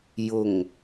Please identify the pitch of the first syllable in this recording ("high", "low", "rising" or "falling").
low